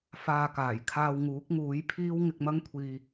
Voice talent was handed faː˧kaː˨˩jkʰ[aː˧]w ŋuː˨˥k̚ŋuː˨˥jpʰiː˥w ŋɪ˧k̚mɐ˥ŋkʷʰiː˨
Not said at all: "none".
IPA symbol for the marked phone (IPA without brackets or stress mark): aː˧